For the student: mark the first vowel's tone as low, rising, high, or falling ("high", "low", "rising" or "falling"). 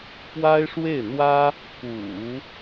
high